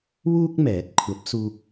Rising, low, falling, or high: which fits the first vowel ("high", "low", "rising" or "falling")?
high